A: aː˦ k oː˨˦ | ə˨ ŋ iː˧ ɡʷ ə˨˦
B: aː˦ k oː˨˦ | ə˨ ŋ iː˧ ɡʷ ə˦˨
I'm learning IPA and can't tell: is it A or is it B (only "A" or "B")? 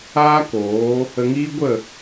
B